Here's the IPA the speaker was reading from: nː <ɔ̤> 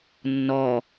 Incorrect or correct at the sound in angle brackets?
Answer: incorrect: ɔ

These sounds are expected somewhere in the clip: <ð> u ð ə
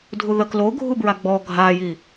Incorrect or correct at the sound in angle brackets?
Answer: incorrect: dʱ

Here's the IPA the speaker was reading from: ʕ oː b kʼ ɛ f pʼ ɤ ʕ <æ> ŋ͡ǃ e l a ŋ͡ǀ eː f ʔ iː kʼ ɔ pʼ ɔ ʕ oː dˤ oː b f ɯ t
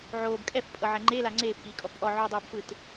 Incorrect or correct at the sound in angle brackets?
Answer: incorrect: ɛ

